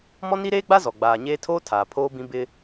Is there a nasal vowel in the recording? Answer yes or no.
yes